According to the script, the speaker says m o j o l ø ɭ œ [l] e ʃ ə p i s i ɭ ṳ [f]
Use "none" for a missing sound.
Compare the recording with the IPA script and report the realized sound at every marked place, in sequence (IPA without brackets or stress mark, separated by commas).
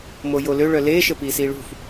l, f